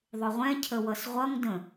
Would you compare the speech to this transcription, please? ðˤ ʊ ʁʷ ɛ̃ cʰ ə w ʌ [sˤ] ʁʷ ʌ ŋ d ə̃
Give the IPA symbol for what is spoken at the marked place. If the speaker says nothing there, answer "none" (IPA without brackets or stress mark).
s